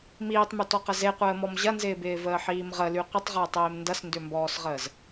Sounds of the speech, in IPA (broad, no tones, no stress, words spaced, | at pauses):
miːtˤmytɔqə zeqʷəːmɔm ʑɐnzɪːbɪːvəː ħiːmʁəly qʷɪtˤʁɪːtˤeːm ndɐsndʏmbɔːsʁəːz